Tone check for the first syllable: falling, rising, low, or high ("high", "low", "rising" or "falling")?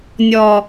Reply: low